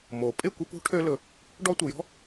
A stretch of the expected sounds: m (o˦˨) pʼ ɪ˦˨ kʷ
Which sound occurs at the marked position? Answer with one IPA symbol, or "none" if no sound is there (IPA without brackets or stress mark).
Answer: o˨